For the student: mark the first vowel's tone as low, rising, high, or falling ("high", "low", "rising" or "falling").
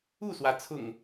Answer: falling